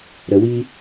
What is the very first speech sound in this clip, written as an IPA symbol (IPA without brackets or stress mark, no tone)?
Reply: ɾ